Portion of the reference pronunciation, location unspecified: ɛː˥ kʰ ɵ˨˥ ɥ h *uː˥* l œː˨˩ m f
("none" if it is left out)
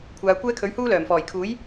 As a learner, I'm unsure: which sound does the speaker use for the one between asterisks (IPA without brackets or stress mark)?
uː˥